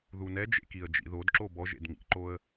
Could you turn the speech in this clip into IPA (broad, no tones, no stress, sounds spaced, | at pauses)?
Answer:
ð u n ɛ d͡ʒ ḛ k i ə̯ d͡ʒ ḭ ð o d ǁ o b ɔ ʒ ḛ d ŋ ḭ ǃ o ə̯